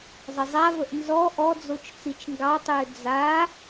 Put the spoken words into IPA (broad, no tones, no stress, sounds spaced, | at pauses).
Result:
zˤ ə zˤ a v ə ʔ n z ɔ ʔ ɔ d͡z o t͡ʃ t͡s i t͡ʃ ŋ ɡ ɑ tˤ ʏː d͡z a